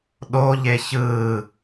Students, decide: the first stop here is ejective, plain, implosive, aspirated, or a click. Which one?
implosive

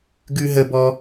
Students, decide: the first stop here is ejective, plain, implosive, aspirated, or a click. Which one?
plain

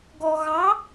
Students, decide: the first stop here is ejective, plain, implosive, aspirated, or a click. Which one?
plain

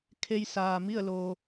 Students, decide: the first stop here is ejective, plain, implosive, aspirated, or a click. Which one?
aspirated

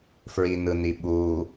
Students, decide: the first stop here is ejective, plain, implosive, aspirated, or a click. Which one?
implosive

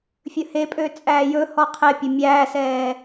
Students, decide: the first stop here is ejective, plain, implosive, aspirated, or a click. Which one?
ejective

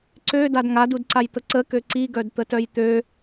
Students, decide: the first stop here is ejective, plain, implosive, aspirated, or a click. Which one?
click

